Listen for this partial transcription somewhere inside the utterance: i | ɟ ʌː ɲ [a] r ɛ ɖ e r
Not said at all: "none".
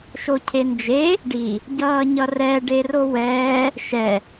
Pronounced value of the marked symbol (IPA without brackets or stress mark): ʌ